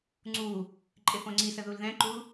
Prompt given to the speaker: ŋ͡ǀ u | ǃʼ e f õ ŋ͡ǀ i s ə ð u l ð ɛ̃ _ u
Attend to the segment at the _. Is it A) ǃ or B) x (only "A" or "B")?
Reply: A